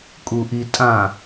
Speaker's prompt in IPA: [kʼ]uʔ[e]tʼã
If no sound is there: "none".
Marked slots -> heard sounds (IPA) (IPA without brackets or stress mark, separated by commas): kʼ, i